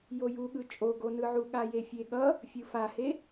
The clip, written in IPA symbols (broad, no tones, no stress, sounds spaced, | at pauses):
j o j u ɠ ɯ t͡ʃʼ o ɡ o n ɯ ʕ u ɠ a j e fʲ e ɠ ʌ | fʲ ɯ f a h e